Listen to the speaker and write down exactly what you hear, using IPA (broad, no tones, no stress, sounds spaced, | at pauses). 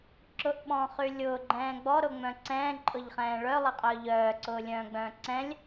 ǁ ʊ ʔ ɓ ɔ̃ː χ y lʲ ʊː ɡ͡ǃ ɛ̃ː ɡ͡b ɔ ɾ ʊ ŋ͡m œ̃ ǀ ɛ̃ː ǃʼ ʊ ʎ χ ɛ̃ː ɭ œ lˠ ɛ qʼ œː ʎ œː ǀ ʊː lʲ œ̃ː ɡ͡b œ̃ː ǀ ɛ̃ lʲ